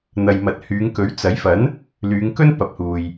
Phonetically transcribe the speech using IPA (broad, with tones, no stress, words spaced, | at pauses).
n̪ɐ˨j mɐ˨t̚hyː˨˧ŋkɵ˨˥ɥ t͡sɐ˨˥jfɐ˨˥n | lyː˨˧ŋkɵ˥n pɐ˨˥p̚huː˨j